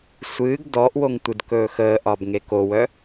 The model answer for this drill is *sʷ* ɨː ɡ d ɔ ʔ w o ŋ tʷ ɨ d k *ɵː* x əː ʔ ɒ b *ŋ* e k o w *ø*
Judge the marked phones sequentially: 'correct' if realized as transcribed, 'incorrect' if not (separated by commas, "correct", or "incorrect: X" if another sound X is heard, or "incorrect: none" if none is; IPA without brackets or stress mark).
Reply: correct, correct, correct, incorrect: œ